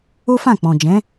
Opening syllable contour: high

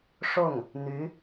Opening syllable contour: falling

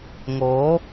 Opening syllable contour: rising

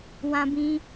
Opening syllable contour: high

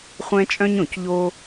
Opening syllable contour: high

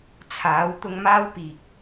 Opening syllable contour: rising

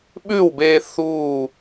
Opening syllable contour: falling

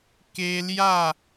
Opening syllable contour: high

